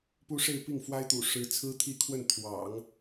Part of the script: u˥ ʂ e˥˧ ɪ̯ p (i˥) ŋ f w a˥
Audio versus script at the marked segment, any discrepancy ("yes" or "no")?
yes